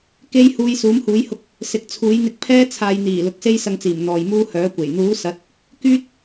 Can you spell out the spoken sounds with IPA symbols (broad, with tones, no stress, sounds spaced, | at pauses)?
k e˥ j h uː˧ j s uː˨˥ m h uː˨˥ j h ʊ˧ k̚ | s ɪ˨ k̚ t͡sʰ uː˨˥ j n̪ ɪ˧ k̚ pʰ ɛː˥ t͡sʰ aː˨ j n̪ iː˨˩ l ʊ˨˥ k̚ s e˥ j s ɐ˧ ŋ t͡s iː˨˩ m n̪ ɔː˨ j m uː˥ h œː˨˥ kʷ e˨˩ j n̪ uː˨˥ s ɐ˨˥ t̚ | k yː˥ t̚